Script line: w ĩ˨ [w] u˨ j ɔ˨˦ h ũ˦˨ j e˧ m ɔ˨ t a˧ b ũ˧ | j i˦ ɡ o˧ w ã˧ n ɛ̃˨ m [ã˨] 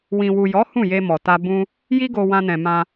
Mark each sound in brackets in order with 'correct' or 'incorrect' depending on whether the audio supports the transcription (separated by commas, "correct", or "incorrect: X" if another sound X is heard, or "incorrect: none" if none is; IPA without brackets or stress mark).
correct, incorrect: ã˧